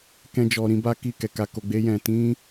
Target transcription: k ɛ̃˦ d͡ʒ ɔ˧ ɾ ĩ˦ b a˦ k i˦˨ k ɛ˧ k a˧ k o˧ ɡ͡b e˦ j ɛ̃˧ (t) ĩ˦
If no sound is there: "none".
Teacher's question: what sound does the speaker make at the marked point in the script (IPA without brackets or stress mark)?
t